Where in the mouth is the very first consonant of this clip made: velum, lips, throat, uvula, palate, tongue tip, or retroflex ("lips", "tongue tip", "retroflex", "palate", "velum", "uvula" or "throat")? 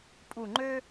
lips